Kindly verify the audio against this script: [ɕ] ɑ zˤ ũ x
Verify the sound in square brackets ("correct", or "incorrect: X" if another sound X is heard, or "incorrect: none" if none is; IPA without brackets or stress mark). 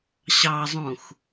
correct